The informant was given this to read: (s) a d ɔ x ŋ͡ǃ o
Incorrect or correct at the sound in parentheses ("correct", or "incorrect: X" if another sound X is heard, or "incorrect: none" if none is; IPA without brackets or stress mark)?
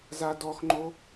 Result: incorrect: z